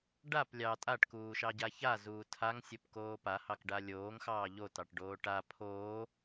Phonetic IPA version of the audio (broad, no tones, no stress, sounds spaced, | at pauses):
ɖ a p lʲ ɑ tʼ a ʈ k uː ʃ ɑ ɟ a ç a z uː tʰ a ŋ sʲ o p k oː p a h ɑ k ɖ a lʲ oː ŋ x ɑː ʎ o t ɑ ʈ ɖ oː ʈ a pʰ oː